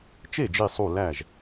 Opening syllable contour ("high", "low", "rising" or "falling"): falling